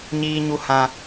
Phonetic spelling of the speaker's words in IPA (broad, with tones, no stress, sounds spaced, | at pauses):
ɲ iː˨ ɲ u˨ h ã˨